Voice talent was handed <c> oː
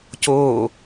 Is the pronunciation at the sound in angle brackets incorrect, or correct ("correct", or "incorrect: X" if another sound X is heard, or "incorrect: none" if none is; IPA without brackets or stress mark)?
correct